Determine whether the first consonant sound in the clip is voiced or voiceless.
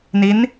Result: voiced